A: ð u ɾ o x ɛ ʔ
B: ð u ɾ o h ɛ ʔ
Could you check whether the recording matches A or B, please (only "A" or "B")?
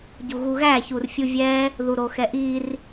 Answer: A